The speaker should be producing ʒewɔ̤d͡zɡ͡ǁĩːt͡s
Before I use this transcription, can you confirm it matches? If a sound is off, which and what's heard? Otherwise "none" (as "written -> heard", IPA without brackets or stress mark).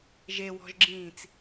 d͡z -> ʒ